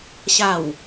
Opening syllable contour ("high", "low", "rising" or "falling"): low